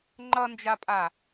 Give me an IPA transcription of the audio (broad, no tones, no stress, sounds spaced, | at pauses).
ŋ͡ǃ ʌ n d͡ʒ a pʼ a